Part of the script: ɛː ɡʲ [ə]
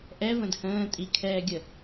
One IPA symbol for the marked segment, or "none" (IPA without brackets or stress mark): ə